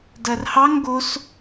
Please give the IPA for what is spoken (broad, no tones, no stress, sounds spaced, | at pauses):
d ɐ r h ɑ ŋ ɡ o s